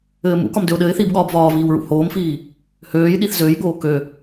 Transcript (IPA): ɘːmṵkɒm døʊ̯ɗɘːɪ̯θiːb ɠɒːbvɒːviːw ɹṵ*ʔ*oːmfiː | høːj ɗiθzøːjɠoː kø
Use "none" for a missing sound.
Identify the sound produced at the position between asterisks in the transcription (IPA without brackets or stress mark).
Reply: h